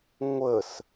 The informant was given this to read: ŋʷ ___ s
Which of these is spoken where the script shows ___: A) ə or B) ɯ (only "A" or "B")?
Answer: A